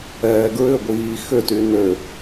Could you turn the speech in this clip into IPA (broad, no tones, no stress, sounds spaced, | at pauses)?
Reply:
ɛː ɡ ɹ ʏ ɡʷ iː x ʏ t y n ø